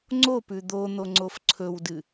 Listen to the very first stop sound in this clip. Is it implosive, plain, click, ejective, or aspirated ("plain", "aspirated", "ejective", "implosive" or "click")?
click